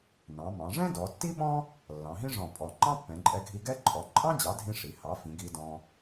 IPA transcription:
nɑ̃˩˧mɑ̃˩˧ʐɛ̃˥ dɔ˩˧tːi˥ɓɔ̃˥ | lːɑ̃˩˧ɦĩ˥ʐɔ̃˧˩ pʼɔ˧˩ ŋ͡ǃɑ̃˥pːɛ̃˩˧ǃʼɛ˧ɡʱi˧ ɡɛ˥ǃʼɔ˩˥ ǃʼɑ̃˥d͡ʑɑ˩˥dʱĩ˧ ʂi˩˧ hɑ˩˥fĩ˩˧ ɡi˧dɔ̃˧

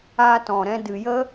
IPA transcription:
aː˧tɔ̃˨ɾɛ̃˧ dɨ˨jə˦

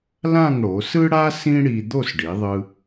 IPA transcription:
lã˥˧ŋɽo˩˧sɯ˥ɽa˥ sĩ˥ɽi˧ d̪o˥˧sɖi˩˧ðˤɯ˧

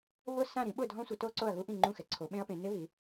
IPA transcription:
βʊ˥˩sã˥˩ ɾĩ˩˥ɓʊ˥˩ dʱɔ̃˦˥sʷi˩˥ to˦˥ǀo˥˩ɐ̯ɣu˦˥ ʔĩ˥˩ŋ͡ǃũ˥˩xɛ˩˥ ǀʰo˩˥ɓẽ˦˥ɐ̯pẽ˩˥ nɪ˦˥βi˩˥

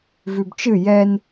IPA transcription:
vʉbt͡ʃɨ jɛn

